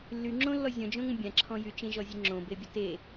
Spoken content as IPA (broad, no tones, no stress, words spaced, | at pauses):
lːyŋ͡ǁõlːɔ zʲɔ̃d͡ʒõŋə̃ bʲãǁʰɔ̃ jyt͡ʃẽʒɔzʲə ŋ͡ǁõbebʲə te